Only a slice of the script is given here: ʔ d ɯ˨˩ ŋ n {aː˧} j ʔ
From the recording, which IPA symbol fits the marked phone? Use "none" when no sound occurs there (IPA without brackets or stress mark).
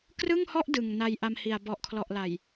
a˧